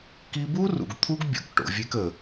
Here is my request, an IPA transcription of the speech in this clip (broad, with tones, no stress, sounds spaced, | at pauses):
k i˧ b u˦ r ṵ˨ ɡ t̪ʰ u˦ ɡ bʲ o̰˨ k ʈ o̰˨ vʲ e˧ k ə˨